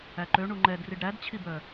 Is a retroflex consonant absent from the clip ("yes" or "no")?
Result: no